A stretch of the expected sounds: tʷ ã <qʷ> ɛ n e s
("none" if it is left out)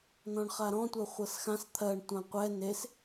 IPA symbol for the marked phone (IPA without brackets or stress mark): qʷ